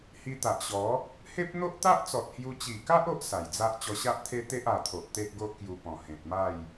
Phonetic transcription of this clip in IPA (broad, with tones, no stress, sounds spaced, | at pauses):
h i˧ t̪ a˨ ʔ ɕ ɔ˨˦ | h e˦ p̚ n̪ o˦ ʔ t̪ a˦ ʔ t͡s ɔ˨ t̚ h j u˧ t͡ɕ i˨˩ k a˦ ʔ o˦ ʔ s a˨˩ j d͡z a˦ ʔ t͡ɕ ɔ˧ ɕ a˦ ʔ t̪ʰ e˦ t̪ e˦ ʔ a˨˩ t̪ʰ o˨ ʔ t̪ e˦ ʔ ɡ o˦ ʔ k j u˧ p ɔ̃˨˩ h ẽ˨ t̚ m a˥˧ j